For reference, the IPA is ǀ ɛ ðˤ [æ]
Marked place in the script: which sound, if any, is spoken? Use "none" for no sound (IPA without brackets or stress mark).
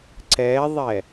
ɛ